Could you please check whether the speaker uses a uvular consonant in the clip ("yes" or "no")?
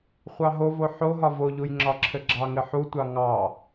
yes